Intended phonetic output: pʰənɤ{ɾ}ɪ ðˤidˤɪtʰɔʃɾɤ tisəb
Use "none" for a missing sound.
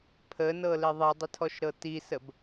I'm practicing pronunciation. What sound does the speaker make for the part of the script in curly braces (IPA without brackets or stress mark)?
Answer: l